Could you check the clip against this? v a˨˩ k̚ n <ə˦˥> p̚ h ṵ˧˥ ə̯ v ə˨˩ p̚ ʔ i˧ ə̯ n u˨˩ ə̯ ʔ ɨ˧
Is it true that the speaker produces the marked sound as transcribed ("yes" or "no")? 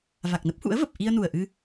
yes